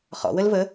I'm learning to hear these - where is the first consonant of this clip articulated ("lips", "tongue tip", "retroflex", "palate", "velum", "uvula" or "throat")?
uvula